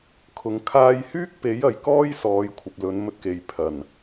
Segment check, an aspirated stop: present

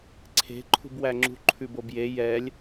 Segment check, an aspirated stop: present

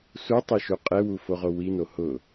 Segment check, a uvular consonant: present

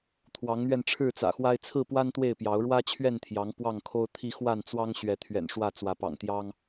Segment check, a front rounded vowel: absent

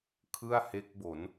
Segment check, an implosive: absent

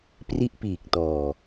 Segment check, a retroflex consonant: absent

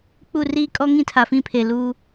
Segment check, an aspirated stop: present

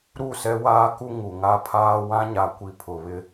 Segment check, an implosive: absent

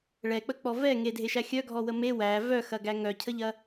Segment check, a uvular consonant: absent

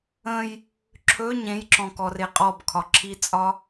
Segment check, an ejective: present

